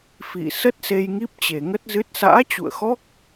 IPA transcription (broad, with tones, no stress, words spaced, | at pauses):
fḭ˧˨ sə˦˥t̚se˧jŋi˦˥p̚ t͡ɕe˨˩ŋə˦˥t̚zɨ˦˥t̚ sa̰ː˧˥t͡ɕṵ˧˨ə̯xɔ˦˥k̚